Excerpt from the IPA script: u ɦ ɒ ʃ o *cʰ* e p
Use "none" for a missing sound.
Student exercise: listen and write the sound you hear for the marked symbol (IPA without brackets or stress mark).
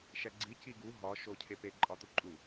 cʰ